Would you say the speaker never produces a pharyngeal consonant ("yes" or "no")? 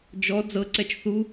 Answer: yes